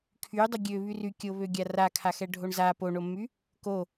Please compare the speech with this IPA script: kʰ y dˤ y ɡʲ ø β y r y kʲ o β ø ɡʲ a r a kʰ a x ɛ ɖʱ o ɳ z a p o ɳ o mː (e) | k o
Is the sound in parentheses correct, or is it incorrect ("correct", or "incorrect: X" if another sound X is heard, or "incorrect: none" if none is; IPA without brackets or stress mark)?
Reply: incorrect: y